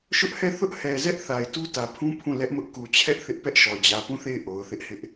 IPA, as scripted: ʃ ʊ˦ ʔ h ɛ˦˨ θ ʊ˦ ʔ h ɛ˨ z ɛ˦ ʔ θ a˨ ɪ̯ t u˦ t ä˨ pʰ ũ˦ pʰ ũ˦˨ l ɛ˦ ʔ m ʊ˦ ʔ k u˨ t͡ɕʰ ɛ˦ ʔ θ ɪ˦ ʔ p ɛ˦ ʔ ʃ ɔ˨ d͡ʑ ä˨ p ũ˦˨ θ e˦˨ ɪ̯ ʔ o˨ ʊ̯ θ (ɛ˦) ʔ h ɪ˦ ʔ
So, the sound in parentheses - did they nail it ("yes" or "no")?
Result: no